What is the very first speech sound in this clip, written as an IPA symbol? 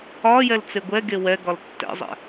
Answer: ɒ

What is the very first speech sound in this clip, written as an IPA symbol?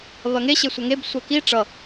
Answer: β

